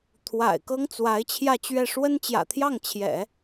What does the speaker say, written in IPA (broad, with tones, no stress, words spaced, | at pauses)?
t̪ʰwa̰˨˩ɪ̯ kɤ˥ŋt͡swa˧˥ɪ̯ t͡ɕʰjä˥˧t͡ɕɥɛ˥˩ ʂwə˥nt͡ɕjä̰˨˩t̪ʰjɑ˥˩ŋ t͡ɕʰjɛ̰˨˩˦